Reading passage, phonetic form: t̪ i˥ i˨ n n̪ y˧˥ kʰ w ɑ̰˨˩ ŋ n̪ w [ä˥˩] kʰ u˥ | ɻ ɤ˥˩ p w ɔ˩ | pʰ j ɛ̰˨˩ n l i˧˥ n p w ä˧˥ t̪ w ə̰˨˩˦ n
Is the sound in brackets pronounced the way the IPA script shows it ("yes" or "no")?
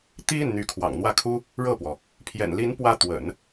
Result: yes